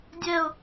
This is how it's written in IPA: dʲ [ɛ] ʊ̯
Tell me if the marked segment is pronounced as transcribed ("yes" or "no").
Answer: yes